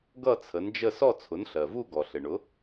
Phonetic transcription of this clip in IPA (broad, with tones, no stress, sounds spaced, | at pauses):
ɡ ʌ˥˨ t͡sʰ ə˩˥ n d͡ʒ ə˥˨ s ɔ˥˨ t͡sʰ ʊ˩˥ n ɬ ɜ˩ v u˥˨ ɡ ɔ˩ ɬ ɪ˩ ɳ ʊ˩˥